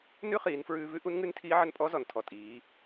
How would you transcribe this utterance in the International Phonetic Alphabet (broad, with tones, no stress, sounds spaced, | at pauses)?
n ʉ˥ χ iː˩˧ n f ɹ ʉː˧ v ʉ˥ ʔ u˧˥ n ŋ ʉ˧˥ n tʰ iː˧˥ ʕ ə˧ n pʼ ɔ˧˥ z ɔ˩ n tʰ ɔ˩ tʼ iː˩˧